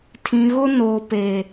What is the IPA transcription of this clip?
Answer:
tʰ ĩ˨ ɣ ʊ˦ n oː˨ p e˨

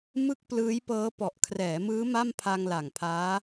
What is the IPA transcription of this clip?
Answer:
m ɯ˥˩ k̚ p l ɯː˦˥ j p ɤː˦˥ p ɔ˨˩ ʔ kʰ r ɛː˩˦ m ɯː˦˥ m a˥˩ m pʰ a˧ ŋ l a˨˩ ŋ pʰ aː˦˥

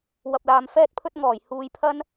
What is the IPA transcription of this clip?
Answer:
w ɐ˨ p̚ l aː˨ m f ɛː˧ t̚ pʰ ɵ˧ t̚ ŋ ɔː˨˩ j h uː˧ j pʰ ɐ˥ n

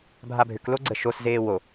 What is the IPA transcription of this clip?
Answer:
bʱ a bʱ ʏ k l o ɡ͡ǀ ə ʃ o s z eː w o

